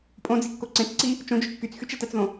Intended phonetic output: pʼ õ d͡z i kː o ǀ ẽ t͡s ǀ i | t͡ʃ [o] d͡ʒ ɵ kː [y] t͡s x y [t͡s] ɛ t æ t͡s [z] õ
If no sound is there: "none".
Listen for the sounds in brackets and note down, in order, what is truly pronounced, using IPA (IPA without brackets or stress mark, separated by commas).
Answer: õ, y, t͡ʃ, ð